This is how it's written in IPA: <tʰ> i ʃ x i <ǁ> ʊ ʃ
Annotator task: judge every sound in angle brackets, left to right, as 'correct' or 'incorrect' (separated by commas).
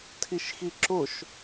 correct, correct